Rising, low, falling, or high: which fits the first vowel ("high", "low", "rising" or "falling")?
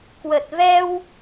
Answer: low